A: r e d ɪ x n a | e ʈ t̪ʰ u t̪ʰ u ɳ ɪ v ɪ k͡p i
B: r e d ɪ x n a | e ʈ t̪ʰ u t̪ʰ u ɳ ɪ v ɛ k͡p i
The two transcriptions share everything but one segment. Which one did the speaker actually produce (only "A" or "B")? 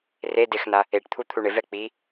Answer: B